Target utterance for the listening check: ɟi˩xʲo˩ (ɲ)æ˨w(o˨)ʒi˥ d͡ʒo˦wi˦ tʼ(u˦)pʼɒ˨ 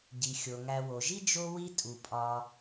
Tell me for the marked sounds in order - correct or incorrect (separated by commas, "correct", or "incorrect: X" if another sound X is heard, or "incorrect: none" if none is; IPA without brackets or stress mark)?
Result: incorrect: ŋ, incorrect: o˩, incorrect: u˩